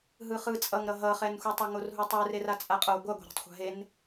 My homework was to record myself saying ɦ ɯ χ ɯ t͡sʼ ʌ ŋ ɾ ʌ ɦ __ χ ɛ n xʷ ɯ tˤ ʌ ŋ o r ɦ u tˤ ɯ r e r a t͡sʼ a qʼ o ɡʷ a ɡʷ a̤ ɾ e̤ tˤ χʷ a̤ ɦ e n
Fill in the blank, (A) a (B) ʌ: B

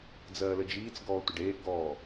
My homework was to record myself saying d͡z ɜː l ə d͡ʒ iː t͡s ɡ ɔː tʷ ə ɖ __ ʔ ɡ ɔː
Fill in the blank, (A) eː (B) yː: A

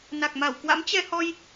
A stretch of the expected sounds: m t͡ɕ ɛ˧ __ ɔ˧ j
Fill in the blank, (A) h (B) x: A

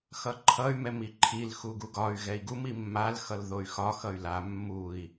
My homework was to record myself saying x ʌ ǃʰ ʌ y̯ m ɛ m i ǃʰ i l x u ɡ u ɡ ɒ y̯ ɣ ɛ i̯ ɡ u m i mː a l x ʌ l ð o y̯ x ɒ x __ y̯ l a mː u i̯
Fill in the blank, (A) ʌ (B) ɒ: A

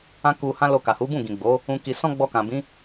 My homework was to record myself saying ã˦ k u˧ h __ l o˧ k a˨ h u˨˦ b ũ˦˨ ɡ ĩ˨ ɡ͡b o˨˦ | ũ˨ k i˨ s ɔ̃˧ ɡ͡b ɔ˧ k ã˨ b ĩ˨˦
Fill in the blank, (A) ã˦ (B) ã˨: A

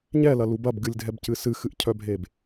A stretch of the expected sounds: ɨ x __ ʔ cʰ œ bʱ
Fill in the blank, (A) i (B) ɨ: B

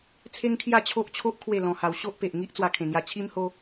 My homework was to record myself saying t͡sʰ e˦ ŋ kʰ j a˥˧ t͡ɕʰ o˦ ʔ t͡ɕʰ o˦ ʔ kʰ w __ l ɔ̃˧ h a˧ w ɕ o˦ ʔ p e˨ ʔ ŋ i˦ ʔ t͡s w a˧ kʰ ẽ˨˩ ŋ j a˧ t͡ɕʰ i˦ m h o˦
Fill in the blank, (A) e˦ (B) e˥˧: B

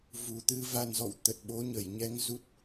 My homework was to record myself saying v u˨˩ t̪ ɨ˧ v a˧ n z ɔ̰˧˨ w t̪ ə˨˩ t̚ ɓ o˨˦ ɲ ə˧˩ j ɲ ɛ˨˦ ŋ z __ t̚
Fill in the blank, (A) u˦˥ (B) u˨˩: A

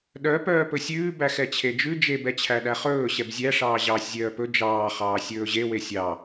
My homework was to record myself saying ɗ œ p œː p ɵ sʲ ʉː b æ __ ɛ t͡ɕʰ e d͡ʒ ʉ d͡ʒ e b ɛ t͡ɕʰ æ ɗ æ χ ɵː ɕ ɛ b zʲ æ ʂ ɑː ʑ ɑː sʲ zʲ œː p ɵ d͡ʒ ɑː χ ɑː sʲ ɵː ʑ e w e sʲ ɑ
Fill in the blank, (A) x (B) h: A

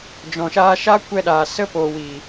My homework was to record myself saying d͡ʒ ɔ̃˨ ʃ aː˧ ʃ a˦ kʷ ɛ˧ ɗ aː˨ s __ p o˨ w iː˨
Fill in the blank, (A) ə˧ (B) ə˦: A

